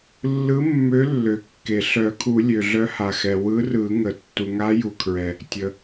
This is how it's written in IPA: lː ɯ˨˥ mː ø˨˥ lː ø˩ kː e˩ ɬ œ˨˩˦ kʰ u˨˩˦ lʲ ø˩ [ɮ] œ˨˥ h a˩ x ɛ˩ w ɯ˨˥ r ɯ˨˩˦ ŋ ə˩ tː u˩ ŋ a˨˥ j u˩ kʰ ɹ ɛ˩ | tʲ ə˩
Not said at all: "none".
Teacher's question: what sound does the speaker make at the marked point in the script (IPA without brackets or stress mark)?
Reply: ɮ